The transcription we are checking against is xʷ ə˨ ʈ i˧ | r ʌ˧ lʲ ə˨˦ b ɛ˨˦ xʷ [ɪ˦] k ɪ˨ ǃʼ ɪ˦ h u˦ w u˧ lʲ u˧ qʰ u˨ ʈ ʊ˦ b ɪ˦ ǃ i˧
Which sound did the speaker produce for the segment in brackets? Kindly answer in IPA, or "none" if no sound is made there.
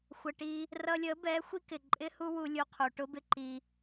i˦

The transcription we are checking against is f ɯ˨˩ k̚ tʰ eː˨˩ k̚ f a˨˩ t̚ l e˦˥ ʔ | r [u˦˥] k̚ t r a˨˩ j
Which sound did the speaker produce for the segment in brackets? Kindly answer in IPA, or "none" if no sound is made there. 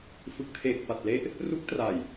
u˦˥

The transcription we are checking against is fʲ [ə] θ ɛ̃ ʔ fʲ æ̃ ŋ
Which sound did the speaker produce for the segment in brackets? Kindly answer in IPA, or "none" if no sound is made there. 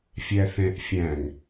æ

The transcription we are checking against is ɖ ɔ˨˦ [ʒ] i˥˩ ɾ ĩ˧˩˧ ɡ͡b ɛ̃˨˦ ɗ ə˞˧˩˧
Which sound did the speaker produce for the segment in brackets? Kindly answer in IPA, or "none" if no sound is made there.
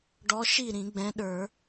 ʃ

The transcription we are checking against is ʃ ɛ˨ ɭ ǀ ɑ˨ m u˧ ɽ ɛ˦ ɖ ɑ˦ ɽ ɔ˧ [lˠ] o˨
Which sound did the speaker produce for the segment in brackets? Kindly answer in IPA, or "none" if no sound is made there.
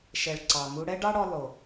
lˠ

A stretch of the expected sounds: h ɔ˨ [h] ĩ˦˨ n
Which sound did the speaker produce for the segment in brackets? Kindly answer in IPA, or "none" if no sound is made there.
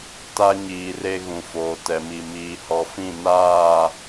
f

